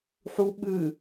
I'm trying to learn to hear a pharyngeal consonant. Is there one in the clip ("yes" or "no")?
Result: yes